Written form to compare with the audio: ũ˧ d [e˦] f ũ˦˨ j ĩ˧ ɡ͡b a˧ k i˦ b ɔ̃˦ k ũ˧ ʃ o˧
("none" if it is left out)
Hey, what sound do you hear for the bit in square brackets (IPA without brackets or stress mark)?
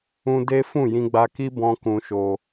e˦